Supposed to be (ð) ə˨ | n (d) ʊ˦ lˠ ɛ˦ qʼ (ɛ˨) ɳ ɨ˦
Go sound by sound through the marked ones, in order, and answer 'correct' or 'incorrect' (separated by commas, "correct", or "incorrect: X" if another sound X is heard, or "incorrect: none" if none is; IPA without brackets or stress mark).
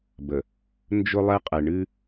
incorrect: b, incorrect: d͡ʒ, correct